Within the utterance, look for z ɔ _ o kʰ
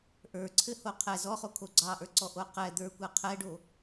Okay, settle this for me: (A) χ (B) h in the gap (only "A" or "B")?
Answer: A